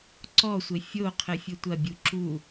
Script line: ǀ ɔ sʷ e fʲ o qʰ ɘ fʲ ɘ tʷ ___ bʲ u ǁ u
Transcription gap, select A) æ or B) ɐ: B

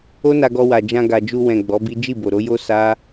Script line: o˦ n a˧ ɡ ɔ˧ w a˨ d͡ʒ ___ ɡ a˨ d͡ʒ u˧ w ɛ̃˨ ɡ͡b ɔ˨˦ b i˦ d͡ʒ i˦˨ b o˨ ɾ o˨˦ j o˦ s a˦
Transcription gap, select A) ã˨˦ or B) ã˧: B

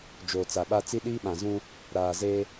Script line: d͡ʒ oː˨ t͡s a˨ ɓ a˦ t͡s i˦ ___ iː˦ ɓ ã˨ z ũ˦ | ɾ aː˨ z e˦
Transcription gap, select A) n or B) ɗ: B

